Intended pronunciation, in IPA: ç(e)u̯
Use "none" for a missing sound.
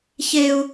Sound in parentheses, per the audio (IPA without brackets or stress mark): e